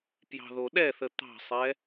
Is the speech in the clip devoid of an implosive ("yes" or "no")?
no